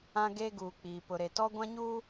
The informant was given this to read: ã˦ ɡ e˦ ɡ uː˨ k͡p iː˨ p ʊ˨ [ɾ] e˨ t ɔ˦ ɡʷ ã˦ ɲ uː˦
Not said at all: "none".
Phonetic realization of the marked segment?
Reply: ɾ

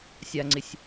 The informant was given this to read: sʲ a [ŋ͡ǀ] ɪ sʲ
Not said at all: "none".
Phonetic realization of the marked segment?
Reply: ŋ͡ǀ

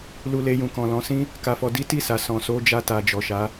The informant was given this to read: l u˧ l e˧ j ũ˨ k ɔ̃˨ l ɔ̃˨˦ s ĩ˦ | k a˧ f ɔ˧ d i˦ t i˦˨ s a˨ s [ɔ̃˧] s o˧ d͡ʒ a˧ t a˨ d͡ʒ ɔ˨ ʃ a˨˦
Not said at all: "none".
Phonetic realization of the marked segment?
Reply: ɔ̃˨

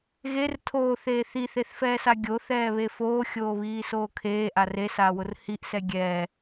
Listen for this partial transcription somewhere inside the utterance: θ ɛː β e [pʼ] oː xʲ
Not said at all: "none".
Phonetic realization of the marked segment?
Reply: f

